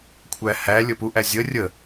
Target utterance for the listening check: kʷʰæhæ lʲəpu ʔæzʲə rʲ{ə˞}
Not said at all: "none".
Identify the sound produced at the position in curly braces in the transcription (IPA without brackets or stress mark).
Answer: ə